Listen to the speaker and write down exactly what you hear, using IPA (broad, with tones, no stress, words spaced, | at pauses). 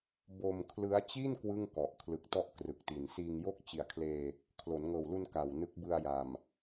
bo˧mkʰlɯ˦˥a̯t͡ɕi˥˩n kwɯ˥˩ŋkɔ˨˩ʔ kʰlɯ˨˩k̚tɔ˥˩ʔ krɯ˨˩k̚ti˨˩n siː˧ŋjo˥˩k̚ t͡ɕi˩˦a̯kʰleː˧ | kʰlo˩˦nŋɤː˨˩wlu˧n ka˨˩wnɯ˦˥k̚ bɯ˧a̯ja˨˩m